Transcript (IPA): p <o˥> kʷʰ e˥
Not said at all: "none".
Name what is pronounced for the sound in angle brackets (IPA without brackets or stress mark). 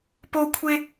o˥